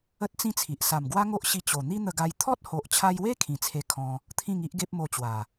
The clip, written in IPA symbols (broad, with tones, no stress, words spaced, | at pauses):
ə˦t̚t͡sĩ˦t͡sʰi˨ʔ sa˨˩mɡwa˦ŋo˦ʔɕi˧ t͡ɕo˨˩ n̪i˦n̪ə˧ɡa˧j t̪ʰɔ˦t̚ho˨ʔt͡ɕʰa˧jwe˦ kʰĩ˨˩t͡sʰe˧kʰɔ̃˧ | t̪ʰĩ˥˧ŋi˦ʔɡe˦p̚mo˧ t͡ɕwa˨˩